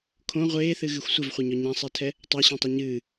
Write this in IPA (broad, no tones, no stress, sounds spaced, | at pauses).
kʰ õ ʁʷ eː θ ɨ ɣ ɨ xʷ sʷ ɘ v χʷ e ɲ ɔ ɲ ã sˤ ɛ tʰ ɛ | tˤ a ɕ õ tˤ ɛ ɲ ɨː